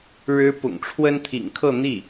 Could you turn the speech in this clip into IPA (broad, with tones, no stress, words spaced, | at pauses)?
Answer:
ɻɻ̩˥ pʊ̰˨˩ŋʈ͡ʂʰwə˥nt̪ʰḭ˨˩ŋkʰɤ˥˧ n̪i˥˩